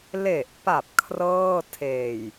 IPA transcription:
l e˨˩ ʔ p a˨˩ p̚ kʰ r ɤː˥˩ tʰ eː˨˩ j

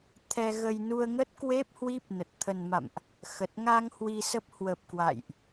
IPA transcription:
t̪ʰ ɛ˧ ɣ ə˧ j n u˧ ə̯ ŋ ə˦˥ t̚ k w e˦˥ p̚ h w i˦˥ p̚ n ə˨˩ t̚ t̪ʰ ə˨˩ n m a̰˧˨ m ʔ | x ə˨˩ t̚ ŋ a˧ ŋ h w i˧ s ə˦˥ p̚ h w ə˨˩ p̚ k w a̰˧˨ j ʔ

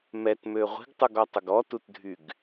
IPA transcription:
m ɛ t m ø ʁʷ i̤ ɡ tˤ u ɡ ɔ tˤ ʊ ɡ ɔ t u t dʱ y ɡ

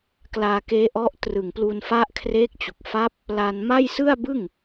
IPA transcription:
k l aː˧ k eː˦˥ ʔ ɔ˦˥ ʔ t r ɯ˨˩ ŋ p l u˧ n f a˦˥ ʔ kʰ r eː˦˥ k̚ t͡ɕ u˨˩ k̚ f a˦˥ p̚ | l a˧ n m a˥˩ j s ɯ˥˩ a̯ b ɯ˥˩ ŋ

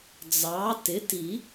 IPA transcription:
d͡z ɑ˩˥ t ɪ˩˥ t i˨˩˦

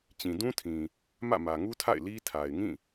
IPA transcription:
t͡ɕ ĩ˨ d ũ˦ tʰ ĩ˨ | m ä̰˦˨ m ä˨ ŋ u˦ tʰ a̰˦˨ ɪ̯ l i˦ tʰ a˨ ɪ̯ ŋ ĩ˦˨

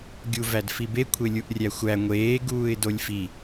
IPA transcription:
ɡʲ u v æ d f i b e kʷʰ e lʲ u ʔ rʲ æ xʷ æ ŋʷ eː ɡ uː ɪ̯ d o lʲ f i

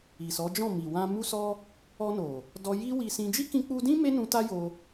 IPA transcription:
i˨ s ɔ˨˦ d͡ʒ ɔ̃˦˨ m i˨ w ã˧ m u˦ s ɔ˦ | ɔ˧ n o˨ | d ɔ˧ j i˦ w i˧ s ĩ˧ d͡ʒ i˦ k ĩ˧ k͡p u˧ d ĩ˦ m e˦ n ũ˧ t a˦ j o˧

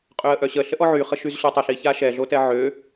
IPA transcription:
qʼ ø ə̯ ʔ œ ɕ ə ɬ ə ʔ ɔ ʕ y χ ə ʃ y z ɕ ø tˤ ə ɬ i ç a ʃ ɛ ɮ o t ɛ ʕ ø

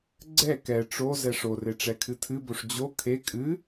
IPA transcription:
ɡ͡ǀ ɛ k ɛ ʈ͡ʂ o z ɛ ʂ o r e ʈ͡ʂ ɛ kʰ ɨ tʰ ɨ b o ʂ d͡ʑ o kʰ e kʼ ɨ

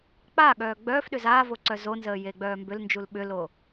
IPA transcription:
k͡p a ɠ œː ɡ͡b œː f ɗ ʏ z aː v o ǀ œ z o n z əː j e ɡ͡b œː m b ʏ l n d͡ʒ u l ɓ ʏ l o

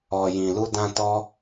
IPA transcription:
ɔ˨ j ĩ˨ l u˧ d ã˧ t ɔ˧

